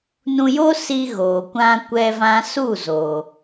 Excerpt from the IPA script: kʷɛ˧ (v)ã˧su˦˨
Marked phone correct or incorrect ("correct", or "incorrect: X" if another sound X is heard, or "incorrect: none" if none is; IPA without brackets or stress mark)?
correct